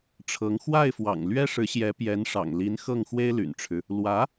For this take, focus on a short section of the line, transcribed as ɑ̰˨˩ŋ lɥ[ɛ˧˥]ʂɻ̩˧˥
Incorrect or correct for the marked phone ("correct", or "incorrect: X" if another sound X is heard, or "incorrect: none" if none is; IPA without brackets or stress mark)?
incorrect: ɛ˥